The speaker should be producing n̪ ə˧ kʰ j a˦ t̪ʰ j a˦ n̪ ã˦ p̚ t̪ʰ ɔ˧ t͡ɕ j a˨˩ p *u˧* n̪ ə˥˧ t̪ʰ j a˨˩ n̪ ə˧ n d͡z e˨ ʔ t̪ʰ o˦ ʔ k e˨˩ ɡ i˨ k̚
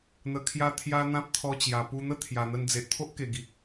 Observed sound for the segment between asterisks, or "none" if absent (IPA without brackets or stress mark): u˧